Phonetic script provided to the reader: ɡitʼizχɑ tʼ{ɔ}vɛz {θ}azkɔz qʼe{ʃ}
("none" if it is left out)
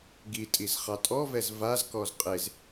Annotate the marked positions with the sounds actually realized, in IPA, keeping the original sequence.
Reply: ɔ, v, z

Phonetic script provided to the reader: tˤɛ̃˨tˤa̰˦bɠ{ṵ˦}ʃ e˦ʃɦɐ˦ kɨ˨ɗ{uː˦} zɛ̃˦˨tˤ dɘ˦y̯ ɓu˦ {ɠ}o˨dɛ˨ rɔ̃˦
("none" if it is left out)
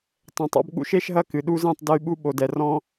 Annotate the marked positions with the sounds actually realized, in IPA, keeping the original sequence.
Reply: ṵ˦, u˦, ɓ

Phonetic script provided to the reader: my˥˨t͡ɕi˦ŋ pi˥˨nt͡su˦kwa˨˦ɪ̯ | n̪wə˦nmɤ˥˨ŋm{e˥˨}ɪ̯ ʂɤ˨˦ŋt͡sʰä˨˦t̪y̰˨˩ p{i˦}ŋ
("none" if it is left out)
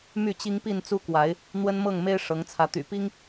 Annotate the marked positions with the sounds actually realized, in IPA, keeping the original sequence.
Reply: e˦, i˦

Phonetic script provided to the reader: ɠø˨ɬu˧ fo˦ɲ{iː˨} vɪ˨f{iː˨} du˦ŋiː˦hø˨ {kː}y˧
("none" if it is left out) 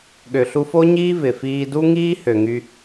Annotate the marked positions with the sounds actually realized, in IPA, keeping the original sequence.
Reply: iː˦, iː˧, ŋ

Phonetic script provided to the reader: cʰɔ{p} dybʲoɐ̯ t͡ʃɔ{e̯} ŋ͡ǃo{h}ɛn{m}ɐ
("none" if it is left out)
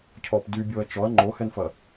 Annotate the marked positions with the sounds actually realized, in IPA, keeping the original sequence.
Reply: p, ɐ̯, h, f

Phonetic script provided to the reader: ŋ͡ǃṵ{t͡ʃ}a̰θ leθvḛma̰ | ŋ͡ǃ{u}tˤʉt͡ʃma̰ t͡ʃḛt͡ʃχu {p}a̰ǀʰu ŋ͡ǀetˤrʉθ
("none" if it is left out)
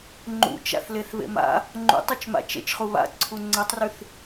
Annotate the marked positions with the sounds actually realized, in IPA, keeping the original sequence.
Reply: t͡ʃ, ṵ, β

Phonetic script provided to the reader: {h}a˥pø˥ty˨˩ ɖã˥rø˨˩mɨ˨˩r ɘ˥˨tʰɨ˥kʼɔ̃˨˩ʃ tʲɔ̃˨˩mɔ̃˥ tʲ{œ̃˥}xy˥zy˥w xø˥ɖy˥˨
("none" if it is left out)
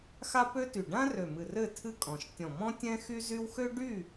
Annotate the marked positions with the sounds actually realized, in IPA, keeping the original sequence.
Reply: x, ɛ̃˥

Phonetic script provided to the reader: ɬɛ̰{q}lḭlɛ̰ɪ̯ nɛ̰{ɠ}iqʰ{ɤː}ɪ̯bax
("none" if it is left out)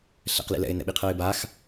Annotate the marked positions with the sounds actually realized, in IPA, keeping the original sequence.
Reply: q, ɓ, ɤː

